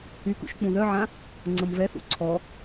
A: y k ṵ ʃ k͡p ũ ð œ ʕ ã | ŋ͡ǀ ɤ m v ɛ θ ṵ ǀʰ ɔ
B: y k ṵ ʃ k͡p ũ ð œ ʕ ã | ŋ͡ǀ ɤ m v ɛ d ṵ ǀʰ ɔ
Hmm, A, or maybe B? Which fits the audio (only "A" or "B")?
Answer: A